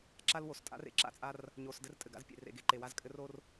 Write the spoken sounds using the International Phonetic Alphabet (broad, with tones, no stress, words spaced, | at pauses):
ǁa˦lwo˨stʼa̰˦r ḛ˨ǁa̰˦t͡sʼa˦r | ɲo˨sdɘ˦r tʼɘ˨ɡa̰˦z pʲḛ˨rḛ˨ɡe˨ ǃe˨wa˦zkʼɘ˦r o˦r